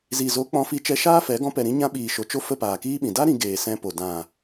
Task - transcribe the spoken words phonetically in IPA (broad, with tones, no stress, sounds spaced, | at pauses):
z i˨ z o˨˦ k͡p ɔ̃˧ f i˧ t͡ʃ ɛ˧ ʃ aː˦ f ɛ˨˦ ɡ ɔ̃˧ p ɛ˨ ɾ ĩ˧ ɲ ã˧ ɓ iː˨ ʃ o˨ t͡ʃ o˦ f ə˦˨ p aː˨ k iː˦ ɓ ĩ˨ d a˦ ɾ ĩ˧ ɡ eː˨ s ɛ̃˧ p o˨ d ã˨